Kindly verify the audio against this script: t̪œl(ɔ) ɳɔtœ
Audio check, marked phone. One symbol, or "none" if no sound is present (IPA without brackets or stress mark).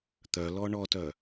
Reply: ɔ